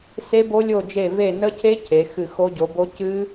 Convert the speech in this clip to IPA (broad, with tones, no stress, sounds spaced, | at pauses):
s e˦˥ b o˦˥ lʲ o˦˨ d͡ʒ e˦˨ v e˦˨ n ə˦˥ cʰ e˦˥ cʰ e˨˦ x ɨ˦˨ x o˦˥ ɟ o˨˦ b o˦˥ c ɨ˦˥